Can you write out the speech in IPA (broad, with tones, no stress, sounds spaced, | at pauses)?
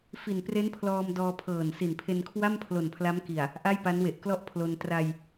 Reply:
f i˨˩ n p r e˦˥ n pʰ l ɔː˧ m d ɔː˧ pʰ ɤː˨˩ n s i˨˩ n pʰ e˧ n kʰ w a˥˩ m pʰ l o˨˩ n pʰ l a˦˥ m k i˨˩ a̯ | ʔ a˥˩ j p a˦˥ n w e˨˩ ʔ k l ɔ˥˩ ʔ pʰ l o˧ n t r a˧ j